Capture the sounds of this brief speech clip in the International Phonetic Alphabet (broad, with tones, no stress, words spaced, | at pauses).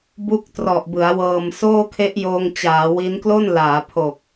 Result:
bu˥˩k̚trɔ˨˩ʔ bɯ˩˦a̯wɤː˧m soː˥˩kʰe˦˥ʔjoː˧ŋ t͡ɕaː˩˦wi˦˥n klo˥˩nlaː˩˦pʰo˨˩k̚